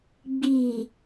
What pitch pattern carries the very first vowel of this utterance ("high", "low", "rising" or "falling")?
low